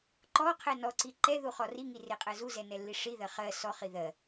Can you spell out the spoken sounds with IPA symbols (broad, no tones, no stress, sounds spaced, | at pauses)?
ǃ ɔ qʰ ɛ n ɔ ǀ i ǃ ɛ ð u χ ɔ r i ŋ i r e qʼ ɜ z u z ɛ n ɛ lː i ʂ i ð ɜ χ ɜ s ɔ χ i ð ɜ